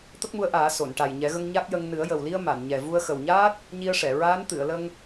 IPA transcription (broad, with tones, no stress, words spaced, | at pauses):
t̪ə˦˥k̚mu˧˥ə̯ʔaː˨˩˦ so˨˩˨nʈa˨˩j ɲɛ˨˩˦ɣə˧ŋ ɲa˦˥k̚jə˧ŋ nɨ˨˩˦ə̯jə˨˩wli˧ə̯ ma˨˩˨nɲɛ˨˩ vu˧ə̯xə˨˩wɲaː˦˥t̚ | ɲi˧ə̯ʂɛ˨˩˨ ɹaː˧˥nt̪ɨ˨˩˨ə̯lə˧ŋ